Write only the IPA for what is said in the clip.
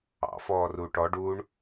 ɑ̰ f ɔː r uː ʈ ɔ ɖ uː ɳ

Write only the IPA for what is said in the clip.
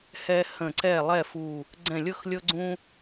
h ɛ˦ h ə̃˧˩ ǀ ɛ˧˩ lˠ ɛ˥˨ f u˧˩ | ɡ͡ǀ ɛ̃˧˩ lʲ ɤ˥˨ x lʲ ɤ˦ ɡ͡ǀ ũ˦

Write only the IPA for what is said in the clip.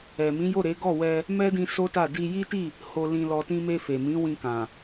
ɛ˨ m ĩ˨˦ j o˦˨ ɾ e˨˦ ɡ ɔ˦˨ w ɛ˧ | m ɛ˦ d ĩ˧ s o˦ t a˦˨ d i˧ j i˦ t i˦˨ | h o˧ l ĩ˧ l ɔ˧ t ĩ˦ m e˧ f e˨ m ĩ˨˦ w ĩ˧ k ã˨

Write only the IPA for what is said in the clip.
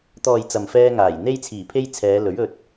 t̪ ɔː˨ j t͡s ɐ˨ m f ɛː˧ ŋ aː˨˩ j n̪ e˧ j t͡sʰ iː˨˩ pʰ e˧ j t͡sʰ ɛː˨˧ l ɵ˨˥ ɥ ɵ˧ t̚

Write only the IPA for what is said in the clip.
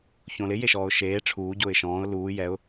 ç õ l ɪ j e ʃ ɔː ʊ̯ ʃ eː ʈ͡ʂʰ uː ɟ ʊː ɪ̯ ʃ ɔ̃ː ʊ̯ l uː j ɛ ʊ̯

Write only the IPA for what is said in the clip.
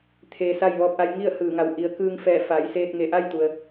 t̪ʰ eː˧ s a˥˨ j ʋ ɔː˧ p̚ ʔ a˧ j ŋ i˥˨ ə̯ h ɯː˧˩ ŋ a˧˩ w ʔ i˩˧ ə̯ k ɯː˧ ŋ f ɛː˧˩ f a˩˧ j s eː˧ t̚ ŋ e˧˩ ʔ a˥˨ j t̪ u˩ ə̯

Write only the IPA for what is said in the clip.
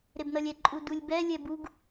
ɾ e b n ʌ lʲ ɛ ǃʼ u d u lʲ b ɛ lʲ ɛ b u ɡ

